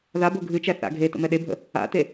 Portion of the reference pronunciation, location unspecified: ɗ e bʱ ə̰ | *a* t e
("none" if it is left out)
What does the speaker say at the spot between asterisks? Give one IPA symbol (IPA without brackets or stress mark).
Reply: a̰